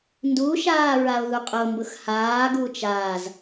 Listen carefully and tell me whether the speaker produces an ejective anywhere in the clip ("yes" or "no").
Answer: yes